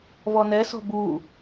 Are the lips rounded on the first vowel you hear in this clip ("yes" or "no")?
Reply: yes